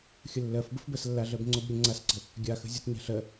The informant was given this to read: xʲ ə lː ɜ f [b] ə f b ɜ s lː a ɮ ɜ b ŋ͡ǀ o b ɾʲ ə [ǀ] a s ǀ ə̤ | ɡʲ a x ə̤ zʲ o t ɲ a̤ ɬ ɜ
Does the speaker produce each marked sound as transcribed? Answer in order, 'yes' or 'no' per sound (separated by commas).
yes, no